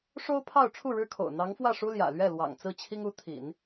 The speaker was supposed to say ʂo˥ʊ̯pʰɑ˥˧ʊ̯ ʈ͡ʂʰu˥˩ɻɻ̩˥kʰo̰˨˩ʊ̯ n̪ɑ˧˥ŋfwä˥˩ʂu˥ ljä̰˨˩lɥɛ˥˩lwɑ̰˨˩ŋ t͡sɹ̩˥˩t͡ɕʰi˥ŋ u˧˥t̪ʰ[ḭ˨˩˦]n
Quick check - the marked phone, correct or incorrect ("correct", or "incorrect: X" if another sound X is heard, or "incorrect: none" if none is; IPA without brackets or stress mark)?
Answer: correct